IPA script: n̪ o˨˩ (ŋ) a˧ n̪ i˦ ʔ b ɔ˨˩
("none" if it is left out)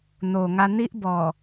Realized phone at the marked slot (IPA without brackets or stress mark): ŋ